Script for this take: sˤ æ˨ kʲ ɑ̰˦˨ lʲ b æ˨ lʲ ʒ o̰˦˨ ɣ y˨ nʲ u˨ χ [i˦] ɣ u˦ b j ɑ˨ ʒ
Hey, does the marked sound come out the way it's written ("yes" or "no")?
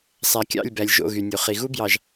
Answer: no